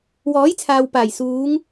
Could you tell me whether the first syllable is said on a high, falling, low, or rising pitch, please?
rising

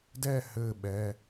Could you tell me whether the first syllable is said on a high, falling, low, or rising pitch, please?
falling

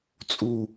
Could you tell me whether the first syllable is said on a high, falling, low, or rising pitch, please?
low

